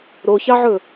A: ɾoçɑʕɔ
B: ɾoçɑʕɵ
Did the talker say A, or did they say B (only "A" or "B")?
B